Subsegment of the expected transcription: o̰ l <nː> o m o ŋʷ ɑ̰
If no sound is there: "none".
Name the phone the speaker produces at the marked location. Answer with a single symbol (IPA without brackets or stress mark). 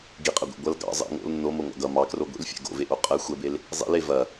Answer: nː